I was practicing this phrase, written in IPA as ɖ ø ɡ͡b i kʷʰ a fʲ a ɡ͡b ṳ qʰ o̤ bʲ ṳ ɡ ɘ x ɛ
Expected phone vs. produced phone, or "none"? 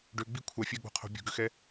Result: ɘ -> ø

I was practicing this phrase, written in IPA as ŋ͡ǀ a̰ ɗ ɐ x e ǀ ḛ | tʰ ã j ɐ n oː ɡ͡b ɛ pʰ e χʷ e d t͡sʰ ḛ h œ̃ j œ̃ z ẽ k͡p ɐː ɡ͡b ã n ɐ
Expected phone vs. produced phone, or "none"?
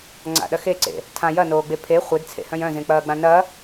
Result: ɛ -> e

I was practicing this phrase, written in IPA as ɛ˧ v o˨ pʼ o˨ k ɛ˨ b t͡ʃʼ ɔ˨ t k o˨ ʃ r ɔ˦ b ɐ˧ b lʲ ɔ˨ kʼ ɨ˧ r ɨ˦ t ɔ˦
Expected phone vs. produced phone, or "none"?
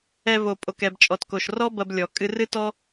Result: none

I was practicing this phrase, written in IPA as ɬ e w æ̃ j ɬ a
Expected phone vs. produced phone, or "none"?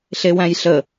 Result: a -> ə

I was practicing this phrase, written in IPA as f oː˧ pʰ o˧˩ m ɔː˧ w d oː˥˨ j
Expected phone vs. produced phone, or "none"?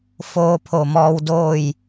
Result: none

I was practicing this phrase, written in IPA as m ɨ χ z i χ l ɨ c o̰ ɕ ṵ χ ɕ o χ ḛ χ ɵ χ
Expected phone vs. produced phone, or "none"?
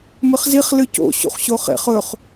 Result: none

